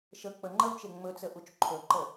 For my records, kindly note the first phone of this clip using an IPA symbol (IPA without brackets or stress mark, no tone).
ʃ